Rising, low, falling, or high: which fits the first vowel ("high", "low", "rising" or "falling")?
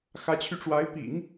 rising